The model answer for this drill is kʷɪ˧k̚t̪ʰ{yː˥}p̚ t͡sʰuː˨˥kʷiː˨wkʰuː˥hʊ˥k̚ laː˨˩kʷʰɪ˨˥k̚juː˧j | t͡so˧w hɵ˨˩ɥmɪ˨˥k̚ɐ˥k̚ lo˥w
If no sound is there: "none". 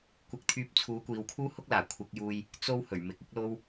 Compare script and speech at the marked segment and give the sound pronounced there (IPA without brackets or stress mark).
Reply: yː˧